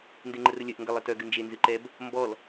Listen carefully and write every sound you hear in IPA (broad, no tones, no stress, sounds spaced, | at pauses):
n d e ŋ͡ǃ ə r ə lʲ œ ʔ ŋ ɡ ə lˠ ɨ t œ ɡ ɨ n d͡ʒ e n z ɨ ǃ ɛ b | m b ɔ l